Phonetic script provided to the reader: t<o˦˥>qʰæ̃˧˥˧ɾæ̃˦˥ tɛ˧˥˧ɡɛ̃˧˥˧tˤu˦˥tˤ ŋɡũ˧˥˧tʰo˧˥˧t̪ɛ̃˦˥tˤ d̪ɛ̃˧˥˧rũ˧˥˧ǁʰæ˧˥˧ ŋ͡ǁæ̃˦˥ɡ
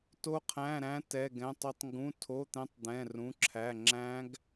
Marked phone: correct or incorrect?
correct